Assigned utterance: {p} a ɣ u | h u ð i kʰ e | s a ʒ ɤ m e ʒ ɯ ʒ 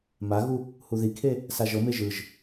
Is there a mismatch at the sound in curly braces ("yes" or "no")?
yes